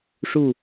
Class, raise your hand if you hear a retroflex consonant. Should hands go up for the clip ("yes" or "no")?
yes